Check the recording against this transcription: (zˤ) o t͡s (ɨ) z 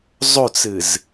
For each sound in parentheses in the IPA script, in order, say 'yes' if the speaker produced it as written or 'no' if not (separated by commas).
yes, yes